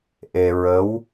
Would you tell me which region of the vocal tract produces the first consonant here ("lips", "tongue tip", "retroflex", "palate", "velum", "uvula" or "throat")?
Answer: throat